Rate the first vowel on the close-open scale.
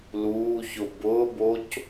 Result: close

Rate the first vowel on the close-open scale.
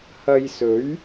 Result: open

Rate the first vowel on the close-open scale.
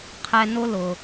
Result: mid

